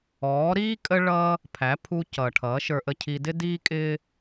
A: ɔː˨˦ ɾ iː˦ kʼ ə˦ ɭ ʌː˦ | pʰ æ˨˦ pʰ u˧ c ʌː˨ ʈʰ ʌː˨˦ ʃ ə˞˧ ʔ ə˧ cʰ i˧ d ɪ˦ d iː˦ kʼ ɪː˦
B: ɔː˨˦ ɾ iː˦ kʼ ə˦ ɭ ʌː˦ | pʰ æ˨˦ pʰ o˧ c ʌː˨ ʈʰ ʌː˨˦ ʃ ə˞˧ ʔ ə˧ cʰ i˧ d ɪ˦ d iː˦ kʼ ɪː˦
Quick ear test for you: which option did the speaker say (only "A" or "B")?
A